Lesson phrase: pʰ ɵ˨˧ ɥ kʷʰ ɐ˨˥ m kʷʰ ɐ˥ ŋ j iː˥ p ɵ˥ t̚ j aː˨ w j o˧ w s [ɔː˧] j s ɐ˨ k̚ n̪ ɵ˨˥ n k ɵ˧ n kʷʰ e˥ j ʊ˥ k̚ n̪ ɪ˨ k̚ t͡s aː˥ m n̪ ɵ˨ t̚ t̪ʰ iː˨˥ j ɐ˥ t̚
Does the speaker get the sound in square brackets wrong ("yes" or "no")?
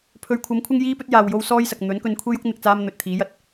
yes